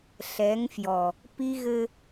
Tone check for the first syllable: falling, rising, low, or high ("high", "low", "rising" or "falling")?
rising